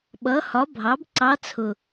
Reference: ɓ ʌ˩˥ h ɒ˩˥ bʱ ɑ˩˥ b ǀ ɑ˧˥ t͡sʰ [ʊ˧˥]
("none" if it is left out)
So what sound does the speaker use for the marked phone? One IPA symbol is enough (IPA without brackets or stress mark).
ʊ˨˩